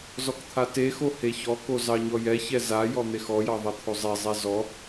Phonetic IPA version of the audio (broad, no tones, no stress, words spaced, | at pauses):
zɔkt̪ʰatexo heçɔko zɑɲɔjɛçɛ za jɔn̪exɔjɑ ðˤɛt̪ʰozˤɛzˤɛ zɔ